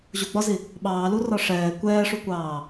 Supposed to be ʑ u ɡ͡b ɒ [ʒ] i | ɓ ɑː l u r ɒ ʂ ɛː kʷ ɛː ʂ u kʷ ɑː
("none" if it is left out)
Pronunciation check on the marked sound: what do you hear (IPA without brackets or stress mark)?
z